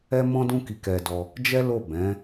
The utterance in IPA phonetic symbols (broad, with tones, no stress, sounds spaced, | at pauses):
ɛ˦ m ɔ̃˦ d ũ˦ k i˧ k ɛ˧ d ɔ˧ | d͡ʒ ɛ˦ l o˦˨ b ɛ̃˨˦